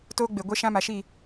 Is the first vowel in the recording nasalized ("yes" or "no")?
no